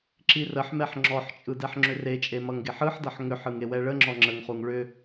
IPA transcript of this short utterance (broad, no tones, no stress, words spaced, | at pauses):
ǁirəħmɛħ ŋ͡ǁɔħt͡ʃʼɯ dɛħŋ͡ǁʏret͡ʃʼe mʌŋɡeħɯħdʌħ ŋʏħɯŋ ewɛɭəŋ͡ǁɔ ŋ͡ǁəŋχuŋ ɭʏ